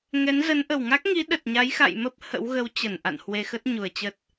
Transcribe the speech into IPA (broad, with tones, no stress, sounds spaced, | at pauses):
ŋ ɛ˨˦ n z ə˨˦ n ʔ ə˨˩ w ŋ a˦˥ k̚ ŋ i˨˦ ɗ ə˨˩ t̚ ɲ a˨˦ j x a̰˧˨ j m ə˦˥ p̚ h ə̰˧˥ w ɣ ə˨˦ w t͡ɕ ə˧˩ n ʔ a̰˧˨ n h w e˧ x ə˦˥ t̚ ɲ u˨˩ ə̯ t͡ɕ ə˦˥ t̚